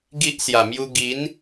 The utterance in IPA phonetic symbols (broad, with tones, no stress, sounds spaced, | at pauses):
ɡ i˦ ʔ s j a˨˩ m j u˧ ɡ i˨˦ n